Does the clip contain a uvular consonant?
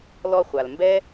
yes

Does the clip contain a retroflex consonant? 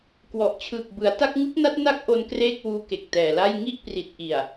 no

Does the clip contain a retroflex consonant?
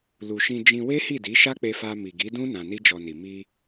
no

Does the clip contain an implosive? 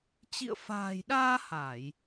yes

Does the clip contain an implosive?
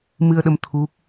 yes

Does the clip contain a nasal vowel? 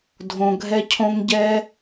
yes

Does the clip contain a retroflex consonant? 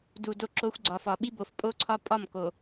no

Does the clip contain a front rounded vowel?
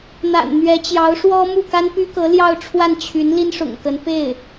yes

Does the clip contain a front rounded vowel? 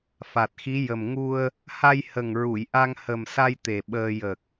no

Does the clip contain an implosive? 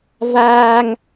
no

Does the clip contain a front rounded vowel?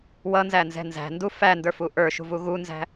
no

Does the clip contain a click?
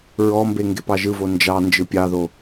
no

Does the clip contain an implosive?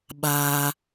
yes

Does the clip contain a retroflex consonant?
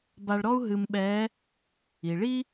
yes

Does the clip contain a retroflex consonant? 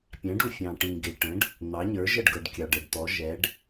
yes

